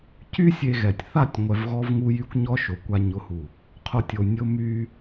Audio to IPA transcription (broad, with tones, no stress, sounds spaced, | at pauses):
c y˦ sʲ e˧ ɣ ɛ˨ tʲ θ a˦˨ tʲ ŋʷ ɛ˧ v ɣ ɔ˦ v ŋ u˦ j y˦ kʷ ɲ ɔ˦ ʃ o˨ kʷ a˧ ɲ ʊ˦ h u˦˨ | qʰ o˦ tʲ o˧ nʲ ʊ˦ m y˦